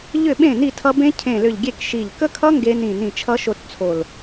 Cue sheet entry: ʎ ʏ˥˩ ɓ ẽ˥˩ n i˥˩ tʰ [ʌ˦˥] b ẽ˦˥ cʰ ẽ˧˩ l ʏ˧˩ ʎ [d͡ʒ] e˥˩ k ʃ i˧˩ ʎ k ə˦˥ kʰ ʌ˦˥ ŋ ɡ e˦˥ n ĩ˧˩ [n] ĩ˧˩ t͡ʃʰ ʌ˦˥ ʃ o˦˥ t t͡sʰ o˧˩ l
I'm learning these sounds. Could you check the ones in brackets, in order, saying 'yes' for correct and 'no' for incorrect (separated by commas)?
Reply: yes, no, yes